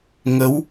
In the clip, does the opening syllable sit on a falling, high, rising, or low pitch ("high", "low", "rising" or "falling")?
rising